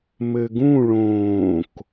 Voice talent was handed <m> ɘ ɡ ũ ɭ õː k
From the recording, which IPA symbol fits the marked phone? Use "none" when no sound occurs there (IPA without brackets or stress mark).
m